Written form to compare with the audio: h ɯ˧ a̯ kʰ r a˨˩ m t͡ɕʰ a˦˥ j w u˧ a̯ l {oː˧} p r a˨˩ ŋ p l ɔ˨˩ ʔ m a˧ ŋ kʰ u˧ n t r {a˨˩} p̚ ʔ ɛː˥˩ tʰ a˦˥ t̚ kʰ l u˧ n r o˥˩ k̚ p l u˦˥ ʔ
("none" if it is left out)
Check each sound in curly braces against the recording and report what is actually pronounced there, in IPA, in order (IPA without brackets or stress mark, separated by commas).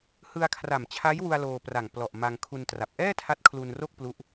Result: oː˧, a˨˩